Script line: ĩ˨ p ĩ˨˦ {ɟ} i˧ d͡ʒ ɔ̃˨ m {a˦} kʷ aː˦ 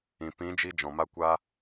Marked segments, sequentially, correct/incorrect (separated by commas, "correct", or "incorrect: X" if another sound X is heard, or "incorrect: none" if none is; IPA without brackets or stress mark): incorrect: d͡ʒ, correct